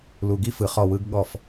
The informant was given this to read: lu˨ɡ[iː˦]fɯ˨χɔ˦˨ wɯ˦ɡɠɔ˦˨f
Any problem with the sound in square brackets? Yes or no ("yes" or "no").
yes